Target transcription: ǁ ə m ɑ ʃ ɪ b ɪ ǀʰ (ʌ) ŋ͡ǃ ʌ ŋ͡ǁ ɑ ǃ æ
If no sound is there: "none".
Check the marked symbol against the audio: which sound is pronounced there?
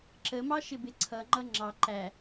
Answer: ʌ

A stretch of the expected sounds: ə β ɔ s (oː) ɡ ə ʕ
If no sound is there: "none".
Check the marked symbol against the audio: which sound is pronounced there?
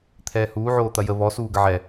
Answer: uː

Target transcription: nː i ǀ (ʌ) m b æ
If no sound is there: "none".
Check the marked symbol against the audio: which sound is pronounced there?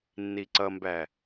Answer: ʌ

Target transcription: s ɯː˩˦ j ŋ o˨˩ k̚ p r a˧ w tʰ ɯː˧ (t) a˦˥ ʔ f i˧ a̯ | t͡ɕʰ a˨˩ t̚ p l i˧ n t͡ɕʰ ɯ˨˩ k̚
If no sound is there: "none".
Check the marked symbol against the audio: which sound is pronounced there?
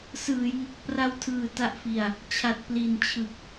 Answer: t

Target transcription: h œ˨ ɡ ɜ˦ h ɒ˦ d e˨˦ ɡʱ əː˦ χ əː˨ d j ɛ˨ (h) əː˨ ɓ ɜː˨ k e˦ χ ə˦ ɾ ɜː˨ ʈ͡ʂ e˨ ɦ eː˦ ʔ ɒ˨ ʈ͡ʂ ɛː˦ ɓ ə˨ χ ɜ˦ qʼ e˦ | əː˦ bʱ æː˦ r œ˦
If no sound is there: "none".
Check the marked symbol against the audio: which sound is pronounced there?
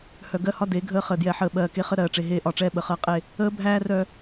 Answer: ħ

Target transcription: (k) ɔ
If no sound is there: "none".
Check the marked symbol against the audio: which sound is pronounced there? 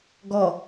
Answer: ɡ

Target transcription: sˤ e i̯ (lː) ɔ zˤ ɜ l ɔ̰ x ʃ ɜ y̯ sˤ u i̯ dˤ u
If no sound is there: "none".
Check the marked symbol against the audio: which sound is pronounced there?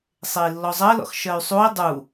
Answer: lː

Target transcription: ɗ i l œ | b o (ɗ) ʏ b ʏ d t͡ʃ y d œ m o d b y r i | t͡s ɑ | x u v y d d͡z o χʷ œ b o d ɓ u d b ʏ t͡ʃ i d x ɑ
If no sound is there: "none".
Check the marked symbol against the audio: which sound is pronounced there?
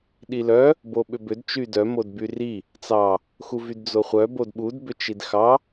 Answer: ɓ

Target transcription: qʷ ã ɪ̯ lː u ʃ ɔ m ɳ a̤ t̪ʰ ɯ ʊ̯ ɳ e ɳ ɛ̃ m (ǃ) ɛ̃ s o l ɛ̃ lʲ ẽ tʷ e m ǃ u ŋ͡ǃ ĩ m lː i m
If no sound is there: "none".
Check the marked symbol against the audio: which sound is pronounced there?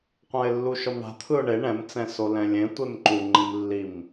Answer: t͡s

